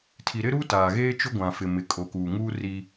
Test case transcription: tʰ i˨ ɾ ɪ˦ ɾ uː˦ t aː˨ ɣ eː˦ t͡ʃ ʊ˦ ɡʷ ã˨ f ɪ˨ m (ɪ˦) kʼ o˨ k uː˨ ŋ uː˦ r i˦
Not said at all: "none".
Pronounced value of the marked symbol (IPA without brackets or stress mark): ɪ˨